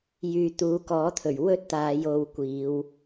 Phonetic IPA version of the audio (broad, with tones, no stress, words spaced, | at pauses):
jyː˨ t̪uː˨˧kɔː˨˥t̪ʰɵ˨˩ɥ wɵ˥t̚t̪aː˨˧j o˧wkʷiː˨˧w